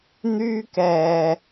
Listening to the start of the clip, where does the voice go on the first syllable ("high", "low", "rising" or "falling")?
high